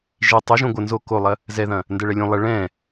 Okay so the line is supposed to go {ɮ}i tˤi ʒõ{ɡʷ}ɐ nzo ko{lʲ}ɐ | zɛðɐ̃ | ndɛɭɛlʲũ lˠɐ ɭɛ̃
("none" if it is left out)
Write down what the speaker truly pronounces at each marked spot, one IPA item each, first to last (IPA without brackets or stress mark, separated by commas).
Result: ʒ, ɡʷ, lˠ